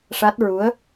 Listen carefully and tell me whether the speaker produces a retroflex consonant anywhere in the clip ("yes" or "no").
yes